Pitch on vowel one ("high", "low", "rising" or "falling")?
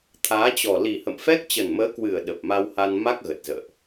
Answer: rising